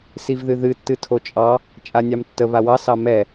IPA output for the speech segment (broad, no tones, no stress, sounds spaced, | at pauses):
s i v ð ɨ ð ɨ tː ɨ tʰ o t͡ʃʼ ɑ | t͡ʃʼ a nʲ ɑ m tː ə β a w ɑ s ɑ m ɛ